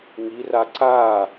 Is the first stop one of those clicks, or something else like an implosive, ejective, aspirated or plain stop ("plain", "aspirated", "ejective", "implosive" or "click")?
click